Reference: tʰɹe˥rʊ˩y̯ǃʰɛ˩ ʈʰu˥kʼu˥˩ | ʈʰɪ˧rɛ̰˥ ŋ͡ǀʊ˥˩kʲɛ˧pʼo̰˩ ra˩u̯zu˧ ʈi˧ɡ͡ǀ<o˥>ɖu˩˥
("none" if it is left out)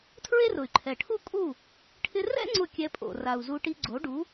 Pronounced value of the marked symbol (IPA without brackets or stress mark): o˩˥